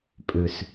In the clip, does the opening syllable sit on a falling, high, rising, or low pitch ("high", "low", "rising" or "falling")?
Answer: low